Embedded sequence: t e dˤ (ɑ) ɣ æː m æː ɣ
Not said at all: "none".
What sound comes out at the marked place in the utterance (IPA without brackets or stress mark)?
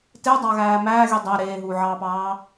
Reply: ɑ